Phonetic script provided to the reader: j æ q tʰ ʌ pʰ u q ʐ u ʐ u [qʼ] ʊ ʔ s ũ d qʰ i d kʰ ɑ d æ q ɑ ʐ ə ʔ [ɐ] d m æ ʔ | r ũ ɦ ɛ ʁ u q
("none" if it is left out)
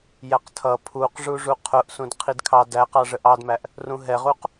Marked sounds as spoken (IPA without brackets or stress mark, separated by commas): qʰ, ɑ